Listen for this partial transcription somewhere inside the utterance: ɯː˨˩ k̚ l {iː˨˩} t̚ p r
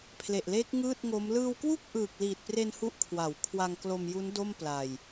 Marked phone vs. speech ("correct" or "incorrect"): correct